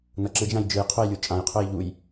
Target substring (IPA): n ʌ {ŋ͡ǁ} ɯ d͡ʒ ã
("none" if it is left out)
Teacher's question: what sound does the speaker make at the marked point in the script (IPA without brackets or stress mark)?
ǁ